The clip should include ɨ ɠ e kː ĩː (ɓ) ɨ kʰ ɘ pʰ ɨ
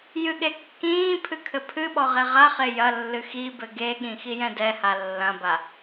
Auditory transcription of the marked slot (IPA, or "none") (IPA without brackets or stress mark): pʰ